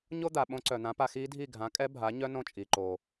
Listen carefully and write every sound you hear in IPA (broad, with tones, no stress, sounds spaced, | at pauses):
ɲ o˥ d̪ a˩ ɓ õ˧˥ ǀ œ˩ n̪ ã˩˥ p a˧ x iː˧˥ dʱ i˥˩ ɡʱ ã˩˥ kʼ ɛ˧˥ bʱ a˩˥ ɲ œ˥ n õ˥˩ t͡ʃʼ i˩ ǃ oː˩